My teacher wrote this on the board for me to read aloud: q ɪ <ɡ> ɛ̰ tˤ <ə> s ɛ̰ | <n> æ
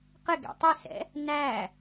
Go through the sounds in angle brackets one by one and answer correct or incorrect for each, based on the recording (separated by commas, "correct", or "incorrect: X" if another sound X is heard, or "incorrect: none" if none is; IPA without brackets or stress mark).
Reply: correct, incorrect: ɪ, correct